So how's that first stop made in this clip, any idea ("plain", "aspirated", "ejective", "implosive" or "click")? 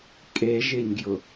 ejective